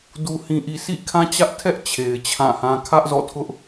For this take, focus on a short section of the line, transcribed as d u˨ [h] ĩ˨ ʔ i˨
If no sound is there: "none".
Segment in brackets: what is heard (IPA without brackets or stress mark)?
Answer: h